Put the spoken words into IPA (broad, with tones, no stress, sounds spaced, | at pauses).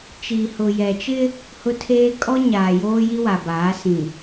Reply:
t͡ʃ i˨ h ʊ˨ j ɛ˨ t͡ʃ ɪ˦ | h ʊ˦ tʰ eː˦ kʼ ɔ˦ ɲ aː˨ j oː˦ j i˦ w a˨ b aː˨˦ s ĩ˨